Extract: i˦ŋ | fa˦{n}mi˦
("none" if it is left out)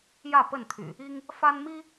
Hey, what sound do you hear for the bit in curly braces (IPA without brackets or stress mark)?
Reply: n